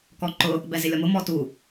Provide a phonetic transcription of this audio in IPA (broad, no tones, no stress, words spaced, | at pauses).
kɔǃʊ | bɛzɪlʲɔmʊ mɔtu